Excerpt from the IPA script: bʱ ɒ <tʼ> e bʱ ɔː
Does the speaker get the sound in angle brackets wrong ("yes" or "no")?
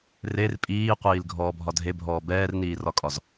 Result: yes